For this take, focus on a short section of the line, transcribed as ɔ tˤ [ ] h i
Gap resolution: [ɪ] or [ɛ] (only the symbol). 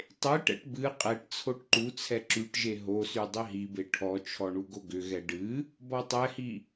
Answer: ɛ